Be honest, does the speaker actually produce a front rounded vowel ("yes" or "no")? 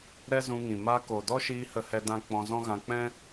no